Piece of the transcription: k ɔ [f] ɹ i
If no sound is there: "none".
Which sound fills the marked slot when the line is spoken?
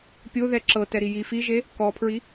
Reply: pʰ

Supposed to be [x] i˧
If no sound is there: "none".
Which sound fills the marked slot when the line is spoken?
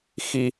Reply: x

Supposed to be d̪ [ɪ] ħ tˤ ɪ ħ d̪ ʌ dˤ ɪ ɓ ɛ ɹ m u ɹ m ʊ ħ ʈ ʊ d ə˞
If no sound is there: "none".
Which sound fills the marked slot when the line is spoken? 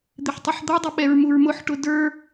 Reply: ɪ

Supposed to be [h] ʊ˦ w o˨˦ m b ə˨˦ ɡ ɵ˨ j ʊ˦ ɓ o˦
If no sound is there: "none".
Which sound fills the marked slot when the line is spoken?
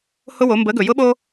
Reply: h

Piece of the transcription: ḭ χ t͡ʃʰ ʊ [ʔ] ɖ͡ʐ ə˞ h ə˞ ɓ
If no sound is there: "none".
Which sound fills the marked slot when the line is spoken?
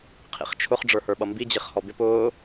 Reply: χ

